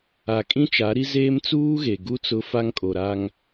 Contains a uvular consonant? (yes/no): no